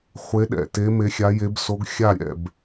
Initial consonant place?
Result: uvular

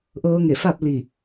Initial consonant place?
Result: glottal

